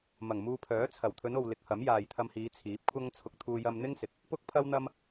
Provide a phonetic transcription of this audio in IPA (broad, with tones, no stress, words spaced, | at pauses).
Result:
mɐ˨˩ŋmuː˧pʰœː˨˥t͡sʰɐ˨˩w t̪ʰɵ˨˧no˨w lɪ˨˥k̚hɐ˨˥m jaː˨jt̪ʰɐ˧mhiː˨˧ t͡sʰiː˨˥p̚kʷʰɐ˥ŋ t͡sʰʊ˨k̚t̪ʰuː˧ jɐ˧mn̪ɪ˥ŋsɪ˨k̚ | pʊ˥k̚pʰɐ˥wn̪ɐ˥m